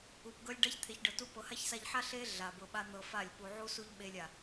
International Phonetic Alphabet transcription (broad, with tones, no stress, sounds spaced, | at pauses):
u˨ p ɡ ɤ˧ lʲ ɖ a˦ ç t̪ʰ e˨ ç ɖ ɤ˨ t u˧ p ɤ˨ h a˦ ç s a˧ ʎ ħ a˦ ɬ e˦ ɮ a˨ b ɤ˨ ɓ a˧ n̪ ɤ˧ f a˦˨ lʲ p u˧ ʕ u˦ s u˦ ʎ ɓ e˧ lʲ a˨